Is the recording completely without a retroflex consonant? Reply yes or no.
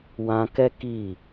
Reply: yes